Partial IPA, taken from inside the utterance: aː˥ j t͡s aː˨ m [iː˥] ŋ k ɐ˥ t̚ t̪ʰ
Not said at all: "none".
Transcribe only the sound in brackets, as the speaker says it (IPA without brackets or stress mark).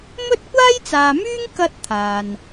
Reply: yː˥